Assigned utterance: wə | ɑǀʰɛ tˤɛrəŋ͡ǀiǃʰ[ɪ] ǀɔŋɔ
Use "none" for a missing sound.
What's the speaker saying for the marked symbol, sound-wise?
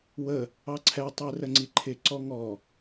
ɪ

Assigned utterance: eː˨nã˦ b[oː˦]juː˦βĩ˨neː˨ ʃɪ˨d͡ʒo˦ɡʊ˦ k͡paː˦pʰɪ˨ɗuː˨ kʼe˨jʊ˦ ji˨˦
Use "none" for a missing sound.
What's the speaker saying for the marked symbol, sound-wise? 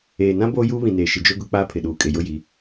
oː˦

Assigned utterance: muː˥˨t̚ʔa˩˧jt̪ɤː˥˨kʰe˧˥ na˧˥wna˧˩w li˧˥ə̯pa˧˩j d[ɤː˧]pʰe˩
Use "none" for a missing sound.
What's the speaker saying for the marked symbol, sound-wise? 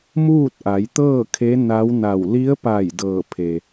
ɤː˧˩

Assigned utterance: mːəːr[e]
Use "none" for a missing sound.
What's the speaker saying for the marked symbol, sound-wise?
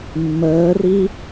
i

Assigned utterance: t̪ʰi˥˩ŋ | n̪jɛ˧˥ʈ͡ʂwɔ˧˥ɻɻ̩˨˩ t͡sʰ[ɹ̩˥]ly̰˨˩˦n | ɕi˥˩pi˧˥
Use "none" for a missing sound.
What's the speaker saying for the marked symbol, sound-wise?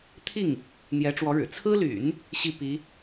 ɹ̩˥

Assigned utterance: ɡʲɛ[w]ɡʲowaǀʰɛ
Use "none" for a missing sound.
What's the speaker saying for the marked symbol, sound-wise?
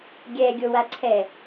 none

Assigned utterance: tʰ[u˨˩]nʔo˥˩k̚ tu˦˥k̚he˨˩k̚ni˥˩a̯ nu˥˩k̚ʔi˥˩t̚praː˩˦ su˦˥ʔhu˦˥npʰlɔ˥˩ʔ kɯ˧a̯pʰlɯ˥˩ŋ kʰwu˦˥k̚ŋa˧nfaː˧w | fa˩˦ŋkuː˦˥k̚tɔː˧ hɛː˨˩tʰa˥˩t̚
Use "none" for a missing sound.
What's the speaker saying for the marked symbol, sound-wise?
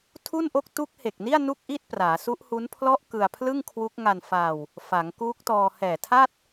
u˥˩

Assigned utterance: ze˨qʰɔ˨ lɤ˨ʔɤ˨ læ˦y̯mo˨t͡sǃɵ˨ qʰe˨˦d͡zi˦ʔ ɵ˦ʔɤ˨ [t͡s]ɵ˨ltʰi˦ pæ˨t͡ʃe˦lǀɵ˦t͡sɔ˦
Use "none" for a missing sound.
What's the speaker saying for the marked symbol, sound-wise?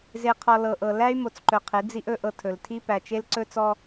tʰ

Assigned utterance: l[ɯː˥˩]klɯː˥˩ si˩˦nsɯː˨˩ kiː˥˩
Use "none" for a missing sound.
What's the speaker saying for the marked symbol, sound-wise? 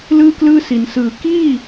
ɯː˥˩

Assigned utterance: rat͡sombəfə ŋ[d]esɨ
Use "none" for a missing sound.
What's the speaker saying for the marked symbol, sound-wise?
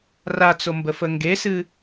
ɡ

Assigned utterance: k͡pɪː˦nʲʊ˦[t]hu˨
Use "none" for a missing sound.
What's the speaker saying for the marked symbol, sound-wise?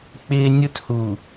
t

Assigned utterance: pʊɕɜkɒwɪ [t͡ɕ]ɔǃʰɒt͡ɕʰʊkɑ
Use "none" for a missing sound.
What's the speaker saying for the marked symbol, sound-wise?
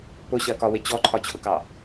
t͡ɕ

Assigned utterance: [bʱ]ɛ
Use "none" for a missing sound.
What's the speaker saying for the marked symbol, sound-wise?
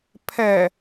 pʰ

